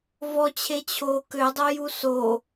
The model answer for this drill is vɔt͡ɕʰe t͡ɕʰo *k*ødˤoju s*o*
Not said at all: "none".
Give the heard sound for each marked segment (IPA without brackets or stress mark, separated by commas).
k, o